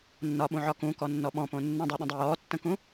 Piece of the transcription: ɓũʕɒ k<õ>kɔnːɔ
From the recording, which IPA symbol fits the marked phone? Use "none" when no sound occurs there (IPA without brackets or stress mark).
ũ